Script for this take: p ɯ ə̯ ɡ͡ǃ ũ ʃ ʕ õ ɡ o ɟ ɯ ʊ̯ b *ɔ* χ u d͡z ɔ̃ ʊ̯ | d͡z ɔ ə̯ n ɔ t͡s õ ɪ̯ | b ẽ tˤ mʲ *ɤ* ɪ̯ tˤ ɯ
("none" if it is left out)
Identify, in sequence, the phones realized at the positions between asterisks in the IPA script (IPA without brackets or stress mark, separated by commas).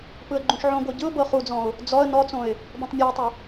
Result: ɤ, ɤ